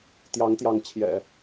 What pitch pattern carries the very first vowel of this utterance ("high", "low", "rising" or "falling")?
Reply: rising